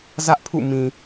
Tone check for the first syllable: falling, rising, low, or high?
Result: high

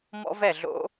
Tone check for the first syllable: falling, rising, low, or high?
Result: high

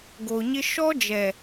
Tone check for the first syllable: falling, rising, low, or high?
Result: low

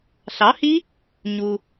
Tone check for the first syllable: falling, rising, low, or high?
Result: rising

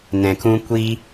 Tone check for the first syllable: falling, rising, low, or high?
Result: low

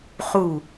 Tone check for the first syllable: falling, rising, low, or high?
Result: falling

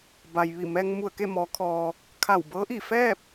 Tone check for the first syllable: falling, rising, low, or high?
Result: low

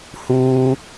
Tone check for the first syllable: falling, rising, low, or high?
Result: high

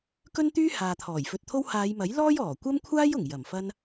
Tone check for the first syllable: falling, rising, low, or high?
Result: high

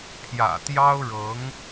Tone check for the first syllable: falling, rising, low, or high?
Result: low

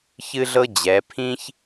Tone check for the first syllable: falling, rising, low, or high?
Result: high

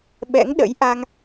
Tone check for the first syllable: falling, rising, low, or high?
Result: rising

